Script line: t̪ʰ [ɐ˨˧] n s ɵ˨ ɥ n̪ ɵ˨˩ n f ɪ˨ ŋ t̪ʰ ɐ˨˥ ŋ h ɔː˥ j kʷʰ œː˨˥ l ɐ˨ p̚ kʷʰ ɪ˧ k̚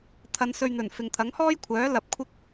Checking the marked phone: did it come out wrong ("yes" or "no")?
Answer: no